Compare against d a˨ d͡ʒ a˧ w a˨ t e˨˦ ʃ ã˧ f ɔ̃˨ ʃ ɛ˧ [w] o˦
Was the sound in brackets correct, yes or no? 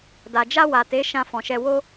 yes